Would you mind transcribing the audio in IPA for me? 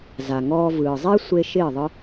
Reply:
z a˨ ŋ ɔː˧ v ɯː˨ zˤ e˧ sʷ e˧ ʃ ɪː˦˨ ðˤ ɯ˦

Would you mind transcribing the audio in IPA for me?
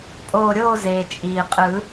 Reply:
pʼ oː˧˩ ɾʲ oː˥˨ z eː˩ t͡ʃʼ iː˩ qʼ ɯ˨˩˦

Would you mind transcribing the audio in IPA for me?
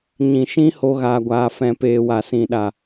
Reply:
ɲ ĩ˨ ʃ ĩ˦ h o˦ ɣ aː˧ ɡʷ aː˧ f ɛ̃˧ p eː˨ w a˨ s ĩ˨ ɗ a˨

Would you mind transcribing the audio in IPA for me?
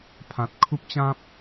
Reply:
pʰ ã˨ t̚ kʰ u˦ p̚ t͡ɕ ã˦ p̚

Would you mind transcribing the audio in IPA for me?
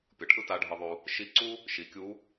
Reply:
pʲ ʌ˩˧ ʈʰ ɯ˥ t a˧˥ ɖʱ ɯ˧ ðˤ u˧ | ʃ i˧˥ ǀ u˥ | ʃ i˩˧ kʲ u˧˥

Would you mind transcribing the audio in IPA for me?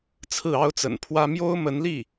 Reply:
t͡sʰ ɹ̩˥˩ ɑ˥ ʊ̯ t͡s ə̰˨˩ n pʰ w ä˥ m j o˥ ʊ̯ m ə˧˥ n l i˥˩

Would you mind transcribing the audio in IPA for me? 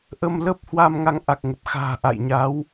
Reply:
ʔ ə˧ m l ə˦˥ p̚ h w a˧ m ŋ a˨˦ ŋ ʔ a˨˩ k̚ ŋ ə˨˩ p̚ x a̤ː˨˩ ʔ a̰˧˨ j ɲ a˨˦ w

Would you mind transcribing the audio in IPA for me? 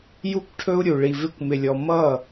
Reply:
j u˧ kʷ ʈʰ ɵ˧ u̯ ɾʲ u˨ ɭ i˧ v ɪ˦ kʷ m ɪ˧ lʲ ɔ˧ m ʌ˦˨

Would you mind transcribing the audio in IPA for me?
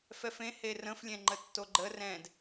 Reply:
f ɛ f ẽ h e r ə̃ f lʲ ɛ̃ ŋ͡ǃ ə tː o ɡ͡ǃ ə r ɛ̃ d

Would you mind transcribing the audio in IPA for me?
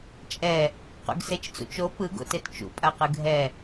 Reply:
t͡ʃʼ ɛ | q ṵ ɡ s e t͡ʃ t͡s ṵ t͡ʃ o p ɯ ɡ o̰ t e t t͡ʃ ṵ pʼ a q ɯ ɡʱ ɛ

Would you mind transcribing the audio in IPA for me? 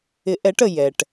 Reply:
ɪ˧˥ ʔ ɛ˧˥ ʈ ə˧ j ɛ˧ ʈ

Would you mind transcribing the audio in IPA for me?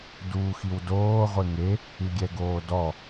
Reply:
d uː x i w d oː ʁʷ e ŋ e | ɨ ɡʲ ɛ ɡ oː d ɔ

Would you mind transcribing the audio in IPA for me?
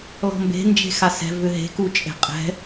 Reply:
l ɔ̤ m b e̤ n d͡ʒ e̤ x a s ɛ̤ v ʏ ɦ e̤ k u t͡ʃʼ e̤ qʼ ɛ̤

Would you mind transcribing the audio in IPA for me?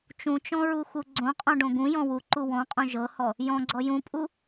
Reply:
t͡ʃ ũ t͡ʃ ɔ̃ ɹ u x u ɡ͡ǀ õ qʼ ɔ̃ ɖ õ ɡ ũ j ɔ̃ w u ǃ u w ɔ̃ qʼ õ ʒ ɤ h ɔ | j ɔ̃ ɡ͡ǀ ɔ j ũ pʼ u

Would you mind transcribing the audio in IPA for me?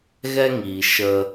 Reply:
ɣ ɛ˦ ŋ iː˨ ʃ ə˧

